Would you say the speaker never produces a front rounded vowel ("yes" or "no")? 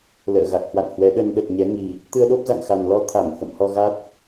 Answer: yes